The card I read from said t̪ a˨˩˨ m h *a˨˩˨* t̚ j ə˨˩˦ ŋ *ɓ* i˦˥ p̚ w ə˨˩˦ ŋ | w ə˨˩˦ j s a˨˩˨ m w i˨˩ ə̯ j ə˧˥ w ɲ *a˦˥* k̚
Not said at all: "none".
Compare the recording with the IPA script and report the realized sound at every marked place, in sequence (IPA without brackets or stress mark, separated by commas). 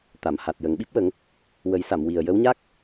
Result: a˨˩, ɓ, a˦˥